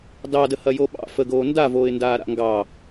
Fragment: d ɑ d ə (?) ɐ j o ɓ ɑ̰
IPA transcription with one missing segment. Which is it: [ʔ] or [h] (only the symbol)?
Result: h